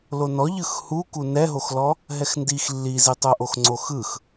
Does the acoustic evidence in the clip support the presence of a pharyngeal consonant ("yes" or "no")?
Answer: no